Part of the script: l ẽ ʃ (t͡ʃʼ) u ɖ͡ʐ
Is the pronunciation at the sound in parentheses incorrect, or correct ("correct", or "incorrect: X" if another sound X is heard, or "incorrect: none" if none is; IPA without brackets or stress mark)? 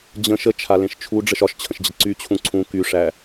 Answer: incorrect: t͡ʃʰ